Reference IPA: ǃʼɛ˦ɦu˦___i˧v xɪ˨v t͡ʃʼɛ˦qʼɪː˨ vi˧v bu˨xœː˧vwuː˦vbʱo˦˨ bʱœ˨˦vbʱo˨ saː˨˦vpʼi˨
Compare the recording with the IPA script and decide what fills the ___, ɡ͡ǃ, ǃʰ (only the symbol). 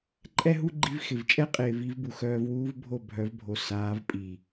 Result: ɡ͡ǃ